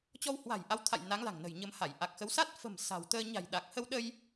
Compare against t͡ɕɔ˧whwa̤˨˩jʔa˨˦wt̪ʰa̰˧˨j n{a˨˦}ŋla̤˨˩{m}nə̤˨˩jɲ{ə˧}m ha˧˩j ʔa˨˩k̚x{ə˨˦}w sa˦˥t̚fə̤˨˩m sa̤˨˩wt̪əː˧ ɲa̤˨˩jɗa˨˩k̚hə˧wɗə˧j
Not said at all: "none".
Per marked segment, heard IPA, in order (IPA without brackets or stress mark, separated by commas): a˨˦, ŋ, ə˧, ə˨˦